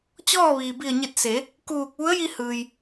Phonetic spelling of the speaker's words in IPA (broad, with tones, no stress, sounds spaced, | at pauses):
t͡ɕ ɔː˥˨ ʋ iː˩ b i˧˩ ə̯ ɲ e˧˩ t̚ s e˩˧ | k uː˧˩ k̚ ʋ u˧˥ ə̯ j i˧ h ɯː˩ j